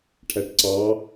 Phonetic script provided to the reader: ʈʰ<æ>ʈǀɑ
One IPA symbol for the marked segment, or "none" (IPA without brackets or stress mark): æ